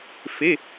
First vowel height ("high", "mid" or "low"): mid